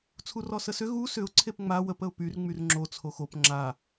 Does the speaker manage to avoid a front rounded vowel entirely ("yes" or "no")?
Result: no